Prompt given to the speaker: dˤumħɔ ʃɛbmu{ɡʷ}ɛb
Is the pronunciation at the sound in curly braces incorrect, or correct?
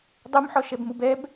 incorrect